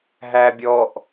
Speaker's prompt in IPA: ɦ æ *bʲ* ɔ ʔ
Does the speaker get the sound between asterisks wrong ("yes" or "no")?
no